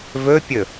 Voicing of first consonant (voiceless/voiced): voiced